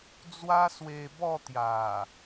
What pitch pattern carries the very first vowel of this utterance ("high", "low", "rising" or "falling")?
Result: high